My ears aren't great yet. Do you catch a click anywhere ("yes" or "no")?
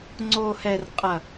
yes